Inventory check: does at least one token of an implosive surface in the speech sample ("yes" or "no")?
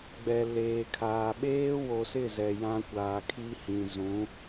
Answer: yes